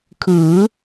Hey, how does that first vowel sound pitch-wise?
rising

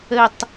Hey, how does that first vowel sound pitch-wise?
falling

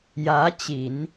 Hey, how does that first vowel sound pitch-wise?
rising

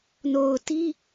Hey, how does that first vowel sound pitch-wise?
low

